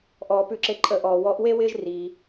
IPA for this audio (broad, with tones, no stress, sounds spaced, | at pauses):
ʔ ɔː˩ p ʉ˨˩˦ ǁ e˧˩ ǃʼ ə˨˩˦ ʔ ɔː˩ w ɔ˨˥ ʔ w e˥ w ɪː˥ ʒ r i˩